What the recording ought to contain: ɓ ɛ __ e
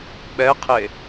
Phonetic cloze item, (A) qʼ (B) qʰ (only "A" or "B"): B